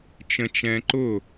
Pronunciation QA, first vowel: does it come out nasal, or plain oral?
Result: nasal